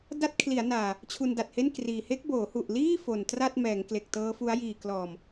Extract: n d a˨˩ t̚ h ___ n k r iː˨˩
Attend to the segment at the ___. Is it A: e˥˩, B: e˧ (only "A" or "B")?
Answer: A